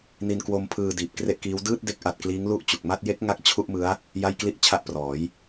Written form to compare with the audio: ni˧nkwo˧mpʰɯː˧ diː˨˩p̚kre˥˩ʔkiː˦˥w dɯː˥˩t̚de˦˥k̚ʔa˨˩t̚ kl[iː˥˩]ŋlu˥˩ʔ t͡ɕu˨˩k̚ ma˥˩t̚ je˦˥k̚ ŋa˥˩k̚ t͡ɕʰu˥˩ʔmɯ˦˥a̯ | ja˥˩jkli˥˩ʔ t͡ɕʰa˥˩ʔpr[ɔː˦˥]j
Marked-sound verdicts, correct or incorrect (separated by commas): incorrect, incorrect